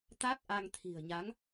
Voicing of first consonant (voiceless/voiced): voiceless